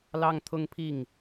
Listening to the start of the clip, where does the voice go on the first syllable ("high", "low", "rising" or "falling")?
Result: high